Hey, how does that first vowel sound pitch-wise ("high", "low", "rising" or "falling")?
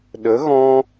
rising